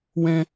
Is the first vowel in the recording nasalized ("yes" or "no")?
yes